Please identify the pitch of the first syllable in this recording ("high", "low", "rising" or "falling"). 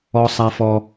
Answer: low